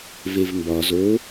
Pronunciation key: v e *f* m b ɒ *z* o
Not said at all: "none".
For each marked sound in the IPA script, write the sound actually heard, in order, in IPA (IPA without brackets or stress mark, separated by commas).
v, z